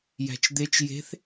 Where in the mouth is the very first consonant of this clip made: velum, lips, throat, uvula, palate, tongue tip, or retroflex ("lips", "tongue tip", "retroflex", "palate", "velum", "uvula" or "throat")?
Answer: palate